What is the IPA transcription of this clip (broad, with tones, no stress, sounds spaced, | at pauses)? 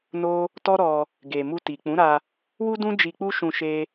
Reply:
n o˦ | t ɔ˦ ɾ ɔ˧ | ɡ e˨ m u˧ t i˨ k͡p ũ˨˦ ɾ a˧ | w u˦ d ũ˦ d͡ʒ i˧ k͡p u˦ ʃ ũ˧ ʃ e˦